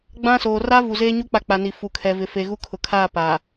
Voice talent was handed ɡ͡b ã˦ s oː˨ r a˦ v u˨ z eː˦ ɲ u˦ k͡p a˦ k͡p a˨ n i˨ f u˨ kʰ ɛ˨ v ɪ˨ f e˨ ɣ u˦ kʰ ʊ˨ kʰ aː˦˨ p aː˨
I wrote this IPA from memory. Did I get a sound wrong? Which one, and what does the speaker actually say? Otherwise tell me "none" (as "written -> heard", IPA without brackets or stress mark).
none